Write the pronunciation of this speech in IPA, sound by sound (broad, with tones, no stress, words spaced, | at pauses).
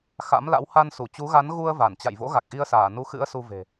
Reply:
xa̰˧˥mla̰˧˥w ha˧nsu˧˩t͡ɕu˨˦ ɣa˨˦nɣu˧ə̯ va˧˩nt͡ɕa̰˧˨jvo̰˧˥ɣa˨˩k̚ ʔi˧ə̯saː˧˩ nu˨˦xɨ̰˧˥ə̯ su˧ve̤˨˩